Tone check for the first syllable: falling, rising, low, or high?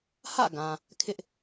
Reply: falling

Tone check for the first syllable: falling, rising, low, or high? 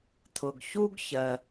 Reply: low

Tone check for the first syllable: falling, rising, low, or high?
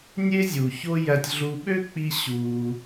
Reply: high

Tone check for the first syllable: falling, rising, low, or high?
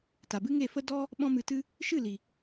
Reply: low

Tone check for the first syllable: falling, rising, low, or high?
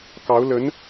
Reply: rising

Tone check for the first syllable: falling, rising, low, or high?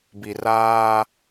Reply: low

